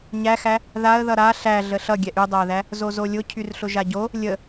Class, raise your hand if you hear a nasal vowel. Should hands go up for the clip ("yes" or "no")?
no